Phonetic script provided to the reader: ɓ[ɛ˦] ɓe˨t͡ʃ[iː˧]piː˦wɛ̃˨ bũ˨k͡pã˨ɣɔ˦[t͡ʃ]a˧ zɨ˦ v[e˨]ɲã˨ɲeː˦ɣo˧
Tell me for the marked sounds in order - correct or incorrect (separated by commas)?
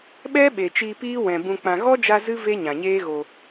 correct, correct, incorrect, incorrect